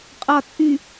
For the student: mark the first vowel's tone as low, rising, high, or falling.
low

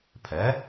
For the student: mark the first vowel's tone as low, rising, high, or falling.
rising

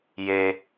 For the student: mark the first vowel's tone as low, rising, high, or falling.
high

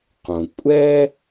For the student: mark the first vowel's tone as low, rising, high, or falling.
low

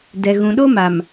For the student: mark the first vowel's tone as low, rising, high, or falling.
low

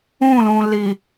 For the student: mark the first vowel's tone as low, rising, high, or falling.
falling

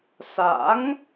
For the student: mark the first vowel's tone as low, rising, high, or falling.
rising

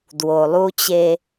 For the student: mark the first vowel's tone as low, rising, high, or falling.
low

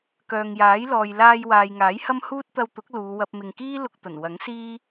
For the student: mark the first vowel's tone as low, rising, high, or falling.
low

